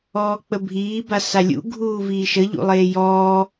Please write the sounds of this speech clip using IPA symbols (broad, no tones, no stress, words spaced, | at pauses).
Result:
ɔːk͡pəbʱiː basalʲṵ ɡʱuːviːʃə ʎṵlˠeːjɔː